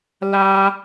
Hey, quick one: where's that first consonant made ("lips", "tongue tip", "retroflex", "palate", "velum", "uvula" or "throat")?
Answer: tongue tip